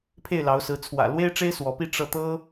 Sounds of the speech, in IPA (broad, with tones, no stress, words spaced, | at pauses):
pʰe˥˩ɪ̯lɑ˧˥ʊ̯sɹ̩˧˥ t͡sʰwä̰˨˩ lwe˥ɪ̯ʈ͡ʂe˥ɪ̯ swɔ˧˥pi˥˧ ʈ͡ʂɤ˥˩ t̪ɤ˥